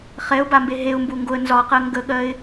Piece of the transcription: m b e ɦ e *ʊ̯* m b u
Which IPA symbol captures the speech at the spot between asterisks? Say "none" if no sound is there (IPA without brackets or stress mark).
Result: ʊ̯